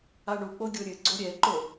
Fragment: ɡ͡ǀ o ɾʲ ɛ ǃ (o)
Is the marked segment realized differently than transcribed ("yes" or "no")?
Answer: no